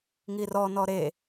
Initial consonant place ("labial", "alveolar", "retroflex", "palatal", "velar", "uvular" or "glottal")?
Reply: velar